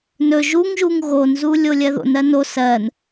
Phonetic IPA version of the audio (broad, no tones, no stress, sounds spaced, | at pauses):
n ɵ ʒ u ŋ ʒ u ŋ ɣ o n z u lʲ o lʲ ɜ ð o̰ n ɜ n o s ɜ n